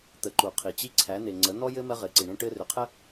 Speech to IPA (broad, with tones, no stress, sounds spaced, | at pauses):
t̪ ə˩˧ ǃ u˩ qʰ i˩ t͡ɕ i˧ ǀʰ æ˩˧ n̪ e˩ ŋ͡ǀ ə˩˧ n̪ ɔ˥ j ɘ˥ m ɜ˧ ʁ ɘː˩ ǀ i˩ ɳ ẽ˧ ʈ ɘː˧ r ʏ˩˧ qʰ ə˥